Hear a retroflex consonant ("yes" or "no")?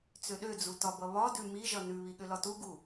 no